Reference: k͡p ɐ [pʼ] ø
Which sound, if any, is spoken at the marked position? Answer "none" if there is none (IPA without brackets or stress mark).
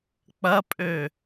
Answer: pʼ